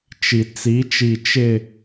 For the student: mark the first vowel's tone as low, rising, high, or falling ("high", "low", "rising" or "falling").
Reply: low